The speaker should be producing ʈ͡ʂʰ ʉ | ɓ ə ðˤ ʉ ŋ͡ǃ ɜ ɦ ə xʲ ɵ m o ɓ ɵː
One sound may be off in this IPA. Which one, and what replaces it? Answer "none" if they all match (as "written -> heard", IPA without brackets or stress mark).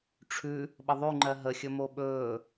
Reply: none